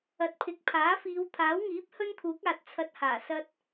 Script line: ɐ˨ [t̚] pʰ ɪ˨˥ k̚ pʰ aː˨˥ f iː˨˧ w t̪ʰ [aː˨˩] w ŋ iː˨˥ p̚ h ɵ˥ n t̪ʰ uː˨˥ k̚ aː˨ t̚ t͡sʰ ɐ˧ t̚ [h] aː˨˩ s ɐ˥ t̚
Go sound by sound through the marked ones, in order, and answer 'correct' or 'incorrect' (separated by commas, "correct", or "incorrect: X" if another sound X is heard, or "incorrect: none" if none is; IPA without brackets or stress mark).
correct, incorrect: aː˨˥, correct